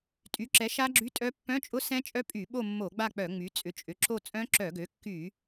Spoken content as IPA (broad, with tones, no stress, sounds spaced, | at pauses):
tʼ y˩˥ ǁ ɛ˩˥ ʃ a˦˥ ɡ͡ǁ y˧˥˧ tʼ œ˦˥ pː œ̃˧˥˧ t͡ʃʼ ʊ˦˥ s ɛ̃˦˥ t͡ʃʼ œ˦˥ pʼ y˧˩˧ ɓ o˦˨ mː o˧˩˧ ɡ͡b a˦˨ k͡p œ˧˩˧ ŋ͡m y˩˥ t͡sʼ ʏ˩˥ t͡ʃʼ ʏ˩˥ ǁ o˦˨ t͡sʼ œ̃˦˥ ǁ œ˧˩˧ ɡ ø˩˥ kː y˧˩˧